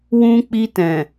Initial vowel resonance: nasal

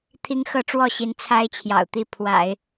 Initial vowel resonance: oral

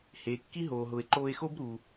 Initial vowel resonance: oral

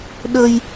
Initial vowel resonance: oral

